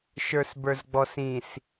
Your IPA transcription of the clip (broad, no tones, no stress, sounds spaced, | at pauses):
ʃ ə˞ s b ə˞ z ɡ͡b ɔ s ĩ s